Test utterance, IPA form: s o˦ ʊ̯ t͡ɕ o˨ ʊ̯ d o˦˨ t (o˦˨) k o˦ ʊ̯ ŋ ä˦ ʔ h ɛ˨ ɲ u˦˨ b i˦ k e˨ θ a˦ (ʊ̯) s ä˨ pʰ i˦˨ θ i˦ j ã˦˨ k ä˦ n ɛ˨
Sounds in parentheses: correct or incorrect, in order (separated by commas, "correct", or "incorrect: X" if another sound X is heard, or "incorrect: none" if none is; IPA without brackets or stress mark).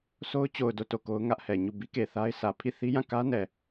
correct, incorrect: ɪ̯